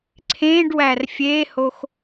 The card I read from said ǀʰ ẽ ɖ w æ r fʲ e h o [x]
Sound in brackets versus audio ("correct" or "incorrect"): correct